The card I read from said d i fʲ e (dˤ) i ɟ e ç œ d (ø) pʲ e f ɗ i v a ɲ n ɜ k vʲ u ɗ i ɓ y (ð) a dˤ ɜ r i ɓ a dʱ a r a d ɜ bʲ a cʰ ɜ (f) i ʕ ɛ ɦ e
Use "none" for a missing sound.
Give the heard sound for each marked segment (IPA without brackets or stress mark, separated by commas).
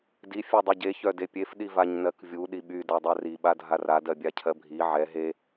dˤ, e, d, bʱ